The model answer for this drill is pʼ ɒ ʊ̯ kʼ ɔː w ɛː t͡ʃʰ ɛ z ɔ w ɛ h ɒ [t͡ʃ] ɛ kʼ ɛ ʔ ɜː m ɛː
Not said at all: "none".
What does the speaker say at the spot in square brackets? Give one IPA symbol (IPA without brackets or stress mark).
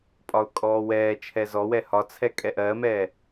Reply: t͡sʰ